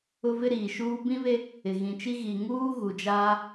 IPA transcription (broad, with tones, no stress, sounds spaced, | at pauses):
ʊ˦ v ɪ˦ ɾ iː˨ ʃ uː˦ b ĩ˦ β e˦ | ɪ˨ ɣ ĩ˨ t͡ʃ i˦ ɣ i˨ ŋ uː˦ ɣ u˨ d͡ʒ aː˦